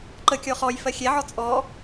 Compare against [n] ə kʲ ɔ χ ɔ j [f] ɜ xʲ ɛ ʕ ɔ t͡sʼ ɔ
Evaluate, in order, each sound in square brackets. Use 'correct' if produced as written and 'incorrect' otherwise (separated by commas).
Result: incorrect, correct